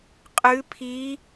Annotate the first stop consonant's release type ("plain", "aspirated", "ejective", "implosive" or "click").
ejective